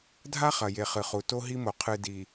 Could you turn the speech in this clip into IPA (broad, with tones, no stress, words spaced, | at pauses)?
dʱa˦χɐ˨ je˨ χɨ˨χu˨ to˦ ɦi˦mo˨ qʰɨ˨ di˨